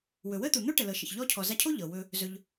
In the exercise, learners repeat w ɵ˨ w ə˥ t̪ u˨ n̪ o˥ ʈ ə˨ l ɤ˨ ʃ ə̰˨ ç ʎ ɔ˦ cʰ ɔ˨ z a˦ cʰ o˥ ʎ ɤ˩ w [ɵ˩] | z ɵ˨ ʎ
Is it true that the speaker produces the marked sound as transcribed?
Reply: no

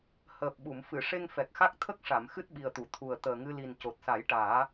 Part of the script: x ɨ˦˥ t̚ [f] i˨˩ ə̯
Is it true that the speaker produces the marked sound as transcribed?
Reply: no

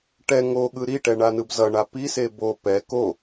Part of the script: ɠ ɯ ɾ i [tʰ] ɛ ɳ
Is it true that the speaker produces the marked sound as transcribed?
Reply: no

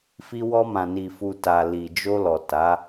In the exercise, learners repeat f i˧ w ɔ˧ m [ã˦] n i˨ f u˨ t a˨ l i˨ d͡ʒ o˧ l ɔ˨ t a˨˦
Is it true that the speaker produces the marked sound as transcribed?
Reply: no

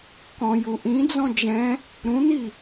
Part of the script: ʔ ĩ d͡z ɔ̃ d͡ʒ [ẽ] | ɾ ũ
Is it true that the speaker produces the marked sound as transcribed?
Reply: no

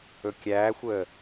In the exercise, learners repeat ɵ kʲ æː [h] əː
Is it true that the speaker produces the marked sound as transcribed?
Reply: no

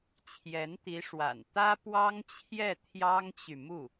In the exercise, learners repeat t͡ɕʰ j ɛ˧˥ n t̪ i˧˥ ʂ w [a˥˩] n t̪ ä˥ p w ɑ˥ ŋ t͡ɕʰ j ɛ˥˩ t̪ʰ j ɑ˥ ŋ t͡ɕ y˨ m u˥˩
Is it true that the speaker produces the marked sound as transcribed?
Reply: no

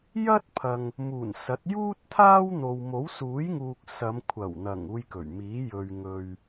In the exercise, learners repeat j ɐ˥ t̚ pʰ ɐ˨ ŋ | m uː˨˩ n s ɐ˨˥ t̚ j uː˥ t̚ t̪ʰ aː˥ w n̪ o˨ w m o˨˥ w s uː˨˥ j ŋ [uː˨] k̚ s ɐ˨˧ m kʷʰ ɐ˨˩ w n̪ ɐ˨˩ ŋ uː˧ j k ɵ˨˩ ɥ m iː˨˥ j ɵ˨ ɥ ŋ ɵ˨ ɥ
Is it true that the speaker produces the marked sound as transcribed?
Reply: yes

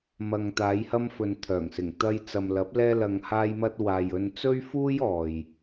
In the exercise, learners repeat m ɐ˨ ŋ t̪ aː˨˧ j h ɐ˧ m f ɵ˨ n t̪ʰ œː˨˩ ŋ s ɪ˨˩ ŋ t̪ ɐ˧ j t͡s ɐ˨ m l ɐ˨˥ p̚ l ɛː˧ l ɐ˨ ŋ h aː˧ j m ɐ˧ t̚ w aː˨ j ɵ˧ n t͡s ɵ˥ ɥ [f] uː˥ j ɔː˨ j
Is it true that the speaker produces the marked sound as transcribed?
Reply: yes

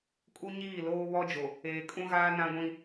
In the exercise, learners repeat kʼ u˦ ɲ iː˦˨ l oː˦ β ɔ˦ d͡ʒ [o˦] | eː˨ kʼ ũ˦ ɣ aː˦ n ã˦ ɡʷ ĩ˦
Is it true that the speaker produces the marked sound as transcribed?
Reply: no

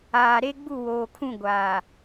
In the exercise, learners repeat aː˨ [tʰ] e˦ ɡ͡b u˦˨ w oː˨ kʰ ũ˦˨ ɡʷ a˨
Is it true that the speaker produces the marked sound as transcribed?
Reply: no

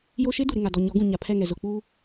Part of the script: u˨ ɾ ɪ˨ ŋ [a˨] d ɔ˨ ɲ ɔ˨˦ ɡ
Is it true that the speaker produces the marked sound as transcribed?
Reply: yes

